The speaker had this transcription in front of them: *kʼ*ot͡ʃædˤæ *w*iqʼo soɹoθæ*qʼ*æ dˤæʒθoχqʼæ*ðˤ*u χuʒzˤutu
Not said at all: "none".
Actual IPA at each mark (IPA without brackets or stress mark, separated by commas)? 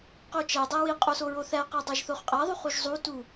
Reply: q, w, q, ðˤ